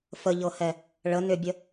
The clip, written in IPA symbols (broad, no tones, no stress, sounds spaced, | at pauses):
f ə ʎ ɤ h ɛ | ɭ ə n ʏ bʲ ə